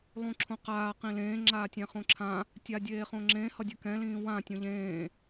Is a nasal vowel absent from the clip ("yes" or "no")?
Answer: no